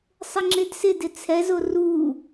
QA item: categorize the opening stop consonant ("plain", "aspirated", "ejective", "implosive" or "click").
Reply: click